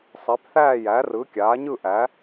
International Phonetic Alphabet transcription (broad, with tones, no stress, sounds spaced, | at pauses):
sˤ e˨˥ p θ æː˥˧ j æ˨˥ r ɯ˨˥ kʲ aː˨˥ ɲ ɯ˥˧ ʔ æː˨˥